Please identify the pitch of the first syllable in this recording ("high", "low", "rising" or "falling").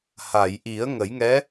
low